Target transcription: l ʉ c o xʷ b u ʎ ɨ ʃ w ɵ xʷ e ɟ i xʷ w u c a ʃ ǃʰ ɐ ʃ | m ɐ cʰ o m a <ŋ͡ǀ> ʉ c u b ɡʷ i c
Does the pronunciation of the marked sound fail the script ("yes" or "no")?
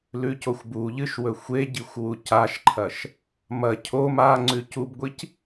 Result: no